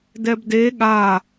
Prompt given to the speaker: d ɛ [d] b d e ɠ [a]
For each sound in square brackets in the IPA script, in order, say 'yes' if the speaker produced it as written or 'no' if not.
no, yes

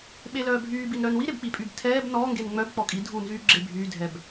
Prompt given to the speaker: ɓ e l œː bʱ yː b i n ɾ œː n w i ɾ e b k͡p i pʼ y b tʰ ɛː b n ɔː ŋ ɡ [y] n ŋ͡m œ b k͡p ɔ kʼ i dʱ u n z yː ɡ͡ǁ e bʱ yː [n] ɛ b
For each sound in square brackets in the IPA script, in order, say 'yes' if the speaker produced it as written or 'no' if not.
no, no

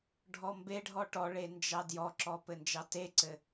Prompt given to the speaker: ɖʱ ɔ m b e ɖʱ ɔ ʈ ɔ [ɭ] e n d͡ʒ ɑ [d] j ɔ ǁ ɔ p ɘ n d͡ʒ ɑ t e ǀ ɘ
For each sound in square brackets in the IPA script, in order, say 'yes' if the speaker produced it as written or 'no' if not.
yes, yes

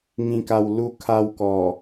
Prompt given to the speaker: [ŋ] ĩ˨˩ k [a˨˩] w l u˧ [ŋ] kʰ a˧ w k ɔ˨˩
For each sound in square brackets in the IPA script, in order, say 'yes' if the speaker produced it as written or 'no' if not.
yes, yes, no

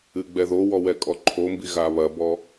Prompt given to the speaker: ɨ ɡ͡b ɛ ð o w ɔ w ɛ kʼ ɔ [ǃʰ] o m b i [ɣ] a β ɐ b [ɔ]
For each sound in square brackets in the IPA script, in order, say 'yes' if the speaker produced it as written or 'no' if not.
yes, yes, yes

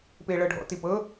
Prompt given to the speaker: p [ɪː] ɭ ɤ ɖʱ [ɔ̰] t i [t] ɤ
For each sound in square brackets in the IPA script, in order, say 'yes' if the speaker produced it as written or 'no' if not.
yes, yes, no

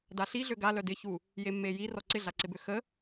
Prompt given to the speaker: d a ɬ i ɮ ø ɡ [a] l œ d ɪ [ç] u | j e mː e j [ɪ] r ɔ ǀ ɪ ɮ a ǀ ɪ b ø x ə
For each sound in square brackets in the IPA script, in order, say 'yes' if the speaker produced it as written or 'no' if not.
yes, yes, no

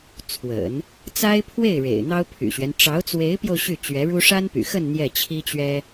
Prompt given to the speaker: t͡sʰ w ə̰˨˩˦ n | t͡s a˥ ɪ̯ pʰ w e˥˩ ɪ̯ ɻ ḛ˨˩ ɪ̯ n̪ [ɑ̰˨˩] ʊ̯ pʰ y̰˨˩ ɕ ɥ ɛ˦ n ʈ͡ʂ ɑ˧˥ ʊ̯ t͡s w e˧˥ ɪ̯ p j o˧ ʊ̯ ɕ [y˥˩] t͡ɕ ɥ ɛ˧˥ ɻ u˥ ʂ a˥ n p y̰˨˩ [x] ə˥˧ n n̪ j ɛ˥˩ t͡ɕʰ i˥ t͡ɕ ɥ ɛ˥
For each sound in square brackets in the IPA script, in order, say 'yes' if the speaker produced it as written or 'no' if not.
no, yes, yes

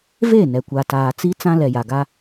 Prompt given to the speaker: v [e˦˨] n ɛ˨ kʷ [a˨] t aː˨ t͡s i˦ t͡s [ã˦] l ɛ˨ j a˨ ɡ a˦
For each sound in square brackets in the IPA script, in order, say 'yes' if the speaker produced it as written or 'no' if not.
yes, yes, yes

